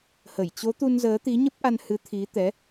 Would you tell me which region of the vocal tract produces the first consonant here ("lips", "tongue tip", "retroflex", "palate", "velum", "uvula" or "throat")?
throat